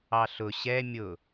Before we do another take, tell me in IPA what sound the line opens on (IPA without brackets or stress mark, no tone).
ɑ